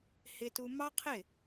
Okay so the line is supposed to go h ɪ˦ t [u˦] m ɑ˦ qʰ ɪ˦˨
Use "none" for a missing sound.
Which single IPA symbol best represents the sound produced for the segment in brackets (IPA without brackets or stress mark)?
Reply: u˦